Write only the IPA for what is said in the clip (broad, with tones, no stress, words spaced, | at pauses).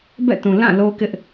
bɛ̰˦˨tũ˨ lã˦˨ lo˦kɪ˦ʔ